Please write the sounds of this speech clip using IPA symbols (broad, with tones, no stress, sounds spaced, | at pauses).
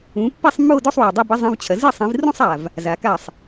ũ˨˦ pː i˥˧ sˤ mː o˥˧ d ɵ˥˧ sˤ w a˨˩ dˤ o˥˧ b e˥ zˤ ĩ˧˥˧ v t͡ɕʰ ɐ˨˦ z ɨ˥˩ sˤ ĩ˨˦ v r ũ˥˧ sˤ a˨˩ v | z a˨˦ k a˥˩ sˤ